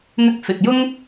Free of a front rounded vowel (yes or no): yes